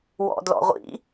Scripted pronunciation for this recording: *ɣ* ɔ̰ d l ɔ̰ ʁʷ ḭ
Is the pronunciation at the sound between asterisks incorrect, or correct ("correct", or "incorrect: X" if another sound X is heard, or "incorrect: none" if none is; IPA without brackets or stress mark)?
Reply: incorrect: w